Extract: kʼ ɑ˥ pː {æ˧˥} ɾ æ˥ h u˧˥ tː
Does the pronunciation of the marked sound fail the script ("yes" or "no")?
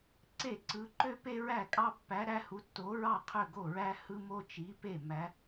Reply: no